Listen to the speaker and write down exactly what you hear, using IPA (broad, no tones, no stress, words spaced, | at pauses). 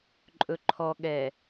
ǃʼɵǃʰɔɠɛ